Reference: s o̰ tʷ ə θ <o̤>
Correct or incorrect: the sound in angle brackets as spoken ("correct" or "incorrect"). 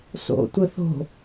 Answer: correct